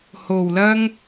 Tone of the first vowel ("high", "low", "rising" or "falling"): low